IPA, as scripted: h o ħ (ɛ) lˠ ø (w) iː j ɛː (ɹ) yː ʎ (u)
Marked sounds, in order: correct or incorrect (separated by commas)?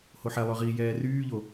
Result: correct, incorrect, incorrect, incorrect